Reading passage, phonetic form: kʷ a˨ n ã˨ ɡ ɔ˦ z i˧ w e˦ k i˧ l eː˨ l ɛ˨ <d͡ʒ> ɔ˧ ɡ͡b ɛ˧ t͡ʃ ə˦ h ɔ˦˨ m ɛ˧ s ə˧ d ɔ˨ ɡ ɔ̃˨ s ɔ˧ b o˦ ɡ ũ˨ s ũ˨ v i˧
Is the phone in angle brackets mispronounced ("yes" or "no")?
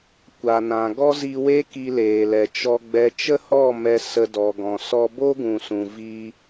yes